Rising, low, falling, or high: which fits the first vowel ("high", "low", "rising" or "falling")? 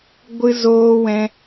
high